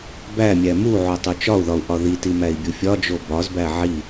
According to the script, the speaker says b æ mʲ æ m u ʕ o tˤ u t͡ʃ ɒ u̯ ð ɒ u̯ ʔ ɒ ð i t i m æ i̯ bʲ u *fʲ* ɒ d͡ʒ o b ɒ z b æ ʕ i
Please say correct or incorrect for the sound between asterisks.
correct